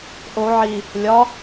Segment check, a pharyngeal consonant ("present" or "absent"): present